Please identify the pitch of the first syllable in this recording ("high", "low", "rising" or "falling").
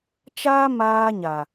high